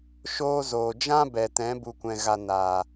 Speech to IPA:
ʃ oː˧ z oː˨ d͡ʒ ã˦ b ɛ˨ t ɛ̃˨˦ b u˧ kʷ ɛ̃˧ ɣ a˧ n a˨

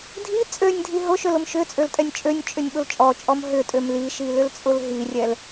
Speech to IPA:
dʱ i t͡sʼ ø nʲ dʱ i ɦ ʊ ʃ ø l ʊ m ʃ ʏ t͡sʼ ø l tʼ ɛ nʲ t͡ʃʼ ø nʲ t͡ʃʼ ʏ nʲ ɓ ʊ l t͡ʃʼ ɔ t͡ʃʼ ɔ m ɦ ʏ tʼ ø m l i ʃ i l ʏ l t͡sʼ ʊ l ɦ i rʲ ɛ l

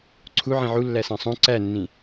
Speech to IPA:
ǀʰ u ʕ ĩ ʕ u lː æ s æ̃ sˤ õ ǀ æ nː ĩ

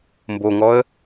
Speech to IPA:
m b o ŋ ɔ ə̯

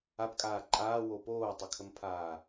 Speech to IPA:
a p kʼ aː ǃʼ aː w o p oː tˤ ə kʰ ə m pʰ aː

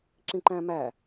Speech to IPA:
ǁ ĩ ǃ æ̃ m æ

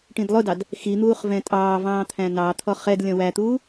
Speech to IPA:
ʈ ĩ d lˠ ʊ d ɑ d | x i n̪ uː χ v ɛ̃ tʼ ɑː v ɑ̃ː t̪ʰ æ̃ n ɑ t̪ʰ ɔ χ ɛ d lʲ ɔ̃ w æ t̪ uː

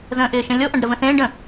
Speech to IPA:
z ə̃ː ʔ ɪː ʃ ə̃ lʲ o ʔ ã ɖ ɾ ə v ə̃ s ẽː ɖ ə̃

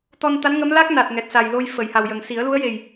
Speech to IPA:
t̪ ɔ˧ n t̪ a˧˥ n ŋ ə˧˥ m l a˦˥ k̚ n a˨˩ t̚ ŋ ɛ˨˩ t̚ s a˨˩ j l o˧ j f ə˨˩˨ j h a˨˩ w j ə˨˩ ŋ s i˨˩˦ ə̯ l u˧˥ ə̯ j e˨˩ j

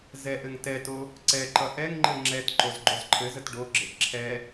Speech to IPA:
z ɛ ʔ ɘ ŋ t ɛ t o | ǀ ɛ ǃ ʌ ʔ ɛ ŋ ŋ͡ǃ ɘ ŋ͡ǁ ɛ t ǃ o z ɡ͡ǃ o z ǃʰ ɘ z ə t ɖ o ɡ͡ǁ ɘ ʔ ǁʰ ɛ

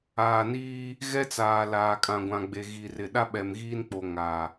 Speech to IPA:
aː˨ n iː˦ | ɣ ɛ˦ t͡s aː˨ l aː˨ kʼ ã˨ ɡʷ ã˨ ɡ͡b e˨ ɣ i˨ r ɪ˨ ɗ a˦ ɓ ɛ˨ m ɣ iː˦ n k͡p o˨ ŋ a˨

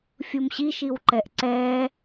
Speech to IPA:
fʲ u m ɕ i ʃ i w ǃ ɛ ʔ ǀ ɛ

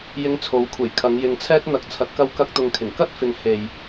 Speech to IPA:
j ɪ˧ ŋ t͡sʰ o˨˧ w kʷʰ e˨˩ j kʰ ɐ˨˧ ŋ j ɪ˨ ŋ t͡sʰ ɛː˥ t̚ n̪ ɐ˨ k̚ t͡sʰ ɐ˨˥ t̚ k ɐ˧ w k ɐ˥ k̚ t̪ ʊ˧ ŋ kʰ ɪ˨˩ ŋ k ɐ˥ t̚ f ɪ˨ ŋ h e˨ j

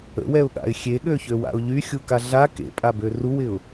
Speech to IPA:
ə̰ w ɛ ʊ̯ ɠ a̰ ɪ̯ xʲ e ɠ ø ç ø w a̰ ʊ̯ ʎ y xʲ u k a ɮ a k ḛ pʼ a b ø r u w ɪ ʊ̯

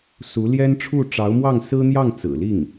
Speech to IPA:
s u˧˥ l j ɛ˥ n ʈ͡ʂʰ u˥˩ ʈ͡ʂ ɑ˧˥ ʊ̯ m w ɑ˥˩ ŋ s ɹ̩˥ n̪ j ɑ˥˩ ŋ t͡s ɹ̩˨˩ l i˥˩ ŋ

